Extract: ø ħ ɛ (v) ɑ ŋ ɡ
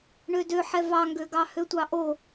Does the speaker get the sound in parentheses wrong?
no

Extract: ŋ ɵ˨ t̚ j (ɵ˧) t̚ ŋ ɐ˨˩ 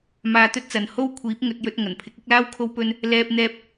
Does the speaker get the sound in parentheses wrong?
no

